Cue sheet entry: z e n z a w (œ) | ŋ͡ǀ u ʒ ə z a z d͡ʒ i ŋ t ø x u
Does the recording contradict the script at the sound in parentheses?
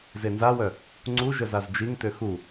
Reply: no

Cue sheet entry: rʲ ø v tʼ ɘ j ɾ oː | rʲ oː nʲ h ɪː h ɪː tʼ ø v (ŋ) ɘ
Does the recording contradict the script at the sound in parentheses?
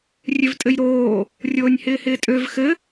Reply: yes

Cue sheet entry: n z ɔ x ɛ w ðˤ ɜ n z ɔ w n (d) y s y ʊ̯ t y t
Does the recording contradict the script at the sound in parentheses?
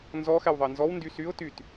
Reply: no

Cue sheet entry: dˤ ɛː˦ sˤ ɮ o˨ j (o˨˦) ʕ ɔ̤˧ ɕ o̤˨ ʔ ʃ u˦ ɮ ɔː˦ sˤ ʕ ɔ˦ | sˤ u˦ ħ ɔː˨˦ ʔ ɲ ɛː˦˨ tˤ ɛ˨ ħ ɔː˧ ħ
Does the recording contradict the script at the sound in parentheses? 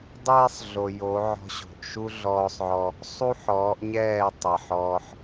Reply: no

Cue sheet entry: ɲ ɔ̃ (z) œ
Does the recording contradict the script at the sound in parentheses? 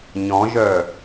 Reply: yes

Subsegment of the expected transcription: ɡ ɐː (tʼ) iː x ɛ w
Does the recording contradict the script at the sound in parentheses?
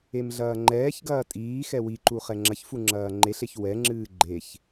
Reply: no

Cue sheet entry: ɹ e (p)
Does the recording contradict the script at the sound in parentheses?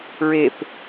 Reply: no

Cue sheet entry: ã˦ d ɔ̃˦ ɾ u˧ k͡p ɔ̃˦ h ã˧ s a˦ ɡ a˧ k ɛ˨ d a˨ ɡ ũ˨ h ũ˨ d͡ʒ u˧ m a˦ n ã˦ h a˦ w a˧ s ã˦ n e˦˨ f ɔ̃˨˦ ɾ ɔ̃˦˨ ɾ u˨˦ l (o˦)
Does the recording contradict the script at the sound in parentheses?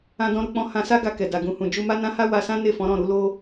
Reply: no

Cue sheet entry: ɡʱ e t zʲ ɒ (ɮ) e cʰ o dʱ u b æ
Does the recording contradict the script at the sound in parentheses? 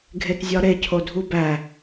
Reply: yes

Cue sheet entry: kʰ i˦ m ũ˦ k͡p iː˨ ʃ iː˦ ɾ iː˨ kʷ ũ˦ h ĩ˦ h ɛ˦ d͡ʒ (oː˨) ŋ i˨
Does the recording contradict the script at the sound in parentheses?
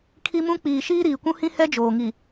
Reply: no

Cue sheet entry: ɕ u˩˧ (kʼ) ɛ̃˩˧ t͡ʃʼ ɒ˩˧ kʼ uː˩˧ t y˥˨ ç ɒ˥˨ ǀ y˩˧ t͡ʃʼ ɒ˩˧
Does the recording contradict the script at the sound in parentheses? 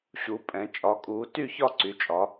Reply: yes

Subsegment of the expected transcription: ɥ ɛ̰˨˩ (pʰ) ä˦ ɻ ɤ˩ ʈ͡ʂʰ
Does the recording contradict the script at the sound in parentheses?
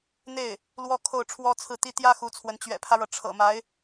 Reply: no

